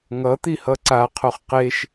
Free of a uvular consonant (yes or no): no